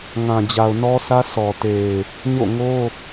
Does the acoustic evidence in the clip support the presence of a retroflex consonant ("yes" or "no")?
no